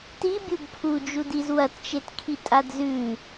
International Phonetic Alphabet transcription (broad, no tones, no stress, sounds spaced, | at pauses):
t i bʲ u b pʰ u d͡ʒ u d i z w ɐ t t͡ʃ e t kʰ i tʼ a d z ʉ